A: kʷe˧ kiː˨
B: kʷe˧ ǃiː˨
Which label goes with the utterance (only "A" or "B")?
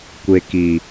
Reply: A